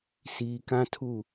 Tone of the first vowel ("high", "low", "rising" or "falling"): low